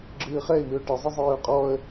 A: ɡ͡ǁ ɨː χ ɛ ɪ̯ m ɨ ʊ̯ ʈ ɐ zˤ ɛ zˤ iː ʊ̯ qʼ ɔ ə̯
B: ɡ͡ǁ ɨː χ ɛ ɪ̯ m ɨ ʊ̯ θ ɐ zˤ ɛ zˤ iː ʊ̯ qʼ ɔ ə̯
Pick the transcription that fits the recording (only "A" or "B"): A